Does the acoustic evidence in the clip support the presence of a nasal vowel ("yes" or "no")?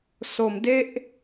no